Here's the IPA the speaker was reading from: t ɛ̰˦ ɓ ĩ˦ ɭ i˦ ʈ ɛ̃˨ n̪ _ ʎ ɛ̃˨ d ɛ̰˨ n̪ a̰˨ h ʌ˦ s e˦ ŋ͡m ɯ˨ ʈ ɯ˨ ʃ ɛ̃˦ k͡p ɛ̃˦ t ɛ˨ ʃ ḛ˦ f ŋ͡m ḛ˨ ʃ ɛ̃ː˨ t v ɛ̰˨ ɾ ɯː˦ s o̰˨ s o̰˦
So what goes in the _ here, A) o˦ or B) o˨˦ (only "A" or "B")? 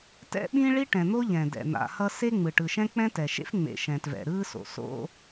A